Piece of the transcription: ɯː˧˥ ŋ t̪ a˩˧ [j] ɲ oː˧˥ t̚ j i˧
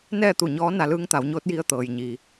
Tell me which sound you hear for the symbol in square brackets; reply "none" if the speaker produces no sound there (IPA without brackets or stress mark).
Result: w